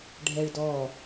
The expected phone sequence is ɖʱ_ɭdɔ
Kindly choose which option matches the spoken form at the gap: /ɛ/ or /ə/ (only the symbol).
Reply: ɛ